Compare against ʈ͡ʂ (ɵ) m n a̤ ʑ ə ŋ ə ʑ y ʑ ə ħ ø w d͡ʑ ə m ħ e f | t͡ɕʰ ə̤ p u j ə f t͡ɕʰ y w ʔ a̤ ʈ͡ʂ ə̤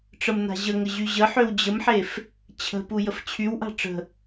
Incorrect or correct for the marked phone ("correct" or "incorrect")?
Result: incorrect